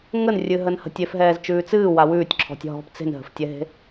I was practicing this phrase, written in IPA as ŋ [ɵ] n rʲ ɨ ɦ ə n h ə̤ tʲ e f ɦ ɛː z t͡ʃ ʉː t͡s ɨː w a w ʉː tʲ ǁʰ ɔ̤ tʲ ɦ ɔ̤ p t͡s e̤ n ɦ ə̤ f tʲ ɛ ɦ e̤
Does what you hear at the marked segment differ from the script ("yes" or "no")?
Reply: yes